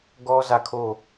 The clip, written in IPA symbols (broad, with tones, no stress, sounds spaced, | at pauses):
ɡ ɔ˦ z ä˦˨ kʰ o˦˨